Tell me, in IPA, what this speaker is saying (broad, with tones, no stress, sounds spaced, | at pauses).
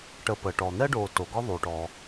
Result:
ʈ ə˨ p ə˩ ʈ ɔ˩ n̪ ɛ˥ ɖ oː˨ t o˩ ɡ ɔ˥ ðˤ y˩ ʈ ɔː˩